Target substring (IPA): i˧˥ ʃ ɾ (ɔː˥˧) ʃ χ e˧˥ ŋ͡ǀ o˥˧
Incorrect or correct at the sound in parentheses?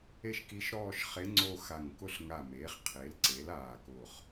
correct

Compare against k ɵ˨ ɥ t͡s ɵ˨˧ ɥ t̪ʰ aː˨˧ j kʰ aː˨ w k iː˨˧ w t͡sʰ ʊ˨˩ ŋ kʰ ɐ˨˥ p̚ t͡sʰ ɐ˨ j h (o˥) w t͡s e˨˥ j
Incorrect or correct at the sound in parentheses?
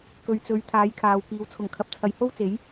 correct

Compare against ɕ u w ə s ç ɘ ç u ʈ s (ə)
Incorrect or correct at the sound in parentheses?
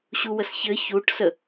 correct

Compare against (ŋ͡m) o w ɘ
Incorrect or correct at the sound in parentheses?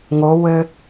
incorrect: ŋ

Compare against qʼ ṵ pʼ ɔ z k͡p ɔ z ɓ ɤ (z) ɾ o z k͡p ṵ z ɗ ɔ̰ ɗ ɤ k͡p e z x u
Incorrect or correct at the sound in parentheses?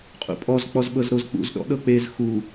correct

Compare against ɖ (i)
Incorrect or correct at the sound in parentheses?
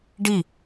correct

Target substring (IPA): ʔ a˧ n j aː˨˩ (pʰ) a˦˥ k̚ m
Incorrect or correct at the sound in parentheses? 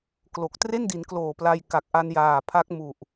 correct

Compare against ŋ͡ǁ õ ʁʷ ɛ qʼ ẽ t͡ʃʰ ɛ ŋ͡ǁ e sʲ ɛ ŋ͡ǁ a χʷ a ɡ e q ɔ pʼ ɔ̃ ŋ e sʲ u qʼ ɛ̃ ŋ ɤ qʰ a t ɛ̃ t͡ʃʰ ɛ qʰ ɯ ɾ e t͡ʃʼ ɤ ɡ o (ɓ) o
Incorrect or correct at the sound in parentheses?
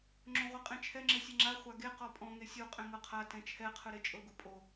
incorrect: pʼ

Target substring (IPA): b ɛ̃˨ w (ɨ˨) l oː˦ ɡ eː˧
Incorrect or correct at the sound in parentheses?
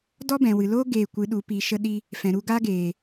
correct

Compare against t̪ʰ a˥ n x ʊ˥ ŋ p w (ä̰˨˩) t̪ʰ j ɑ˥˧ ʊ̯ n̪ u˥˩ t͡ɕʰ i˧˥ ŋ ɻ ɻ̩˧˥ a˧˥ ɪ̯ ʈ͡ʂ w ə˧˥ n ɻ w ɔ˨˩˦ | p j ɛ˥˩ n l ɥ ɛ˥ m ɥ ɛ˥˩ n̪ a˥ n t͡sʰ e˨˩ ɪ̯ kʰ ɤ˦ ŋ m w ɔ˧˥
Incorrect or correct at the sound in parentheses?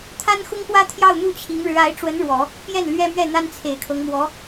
incorrect: ä˥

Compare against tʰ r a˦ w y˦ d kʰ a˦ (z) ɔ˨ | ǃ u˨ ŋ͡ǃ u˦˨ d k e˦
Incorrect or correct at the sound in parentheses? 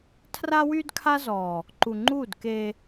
correct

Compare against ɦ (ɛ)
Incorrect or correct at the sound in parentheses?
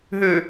incorrect: ø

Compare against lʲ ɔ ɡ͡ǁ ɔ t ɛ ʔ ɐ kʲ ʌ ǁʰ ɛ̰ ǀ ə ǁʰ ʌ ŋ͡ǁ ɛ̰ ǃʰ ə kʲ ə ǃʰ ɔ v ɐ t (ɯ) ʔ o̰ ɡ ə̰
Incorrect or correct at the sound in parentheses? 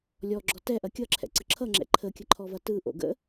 correct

